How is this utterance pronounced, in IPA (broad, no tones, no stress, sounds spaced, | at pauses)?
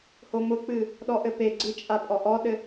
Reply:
h o m ʊ k͡p ɨ | ɗ ɔ ʔ ɘ p e ɡ͡ǀ ɨ t͡ʃʼ a pʼ ɔ ʔ ɔ ɗ ɘ